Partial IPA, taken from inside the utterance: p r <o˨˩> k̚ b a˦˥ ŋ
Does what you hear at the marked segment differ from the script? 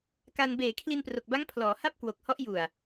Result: no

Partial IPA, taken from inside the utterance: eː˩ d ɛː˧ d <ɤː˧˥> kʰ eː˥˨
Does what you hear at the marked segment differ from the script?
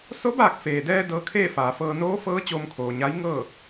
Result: no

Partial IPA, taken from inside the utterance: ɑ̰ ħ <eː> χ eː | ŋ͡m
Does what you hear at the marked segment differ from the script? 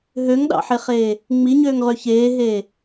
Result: yes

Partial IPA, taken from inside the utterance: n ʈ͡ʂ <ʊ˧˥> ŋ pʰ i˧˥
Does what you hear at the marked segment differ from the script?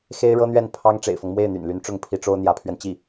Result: yes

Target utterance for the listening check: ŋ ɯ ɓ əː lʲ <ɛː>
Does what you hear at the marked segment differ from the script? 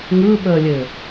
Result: yes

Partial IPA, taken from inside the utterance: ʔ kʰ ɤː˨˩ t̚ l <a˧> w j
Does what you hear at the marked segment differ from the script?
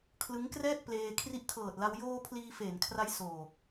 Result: no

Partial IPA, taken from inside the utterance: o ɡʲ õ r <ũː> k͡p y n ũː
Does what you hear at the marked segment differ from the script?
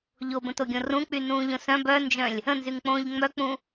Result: yes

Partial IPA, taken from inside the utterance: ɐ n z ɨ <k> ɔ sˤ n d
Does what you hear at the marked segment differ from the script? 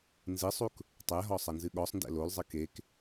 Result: yes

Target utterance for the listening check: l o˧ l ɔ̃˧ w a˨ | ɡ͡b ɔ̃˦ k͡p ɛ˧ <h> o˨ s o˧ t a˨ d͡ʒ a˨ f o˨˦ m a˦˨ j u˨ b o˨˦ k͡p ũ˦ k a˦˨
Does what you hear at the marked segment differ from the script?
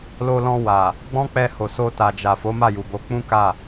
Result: no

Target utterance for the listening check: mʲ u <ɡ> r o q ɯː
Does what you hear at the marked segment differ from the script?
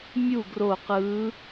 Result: no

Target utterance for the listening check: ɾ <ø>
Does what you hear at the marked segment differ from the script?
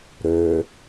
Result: no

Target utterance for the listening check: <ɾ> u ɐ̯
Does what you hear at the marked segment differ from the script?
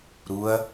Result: no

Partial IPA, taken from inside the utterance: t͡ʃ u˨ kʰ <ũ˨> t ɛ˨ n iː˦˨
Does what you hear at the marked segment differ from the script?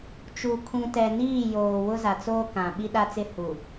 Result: no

